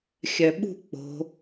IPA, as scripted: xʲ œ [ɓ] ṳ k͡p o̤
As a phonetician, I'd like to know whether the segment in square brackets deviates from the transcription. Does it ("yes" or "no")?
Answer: no